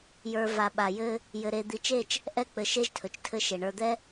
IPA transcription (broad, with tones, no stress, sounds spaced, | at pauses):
j ə˞˨ v a˨ ɓ a˨ j ɘ˦ | j ɘ˨ ɾ e˨ d̪ i˨ t͡ʃ e˦˨ t͡ʃ | ʔ ɛ˦ k͡p ɘ˨ ʃ e˦ ʒ tʰ ɵ˨ t͡ʃ tʰ ɘ˦ ʃ e˨ ɳ ə˞˨ d̪ ɛ˦